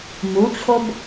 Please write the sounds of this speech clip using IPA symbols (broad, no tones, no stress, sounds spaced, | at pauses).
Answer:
m u t͡ɕʰ o b